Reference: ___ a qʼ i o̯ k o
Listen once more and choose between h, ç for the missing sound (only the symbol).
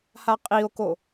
h